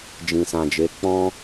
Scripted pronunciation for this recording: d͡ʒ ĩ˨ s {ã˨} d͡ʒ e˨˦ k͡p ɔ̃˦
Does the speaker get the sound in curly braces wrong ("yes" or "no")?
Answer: no